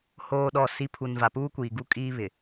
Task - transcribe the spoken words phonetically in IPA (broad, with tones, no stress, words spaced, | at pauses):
hoː˨ɗɔ˨ si˨˦pʰu˨n va˨puː˦kʷiː˨ ɡu˦kʼiː˦ βɪ˨